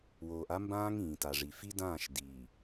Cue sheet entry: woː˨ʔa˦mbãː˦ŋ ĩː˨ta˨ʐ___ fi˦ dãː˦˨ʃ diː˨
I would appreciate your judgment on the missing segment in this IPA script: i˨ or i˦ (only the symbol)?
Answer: i˨